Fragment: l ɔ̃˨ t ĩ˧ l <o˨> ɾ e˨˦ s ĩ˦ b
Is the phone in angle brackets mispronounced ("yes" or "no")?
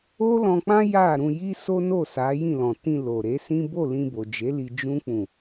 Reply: no